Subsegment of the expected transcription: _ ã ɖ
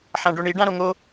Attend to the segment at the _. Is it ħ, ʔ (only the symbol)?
ħ